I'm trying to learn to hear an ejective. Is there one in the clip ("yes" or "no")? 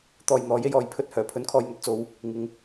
no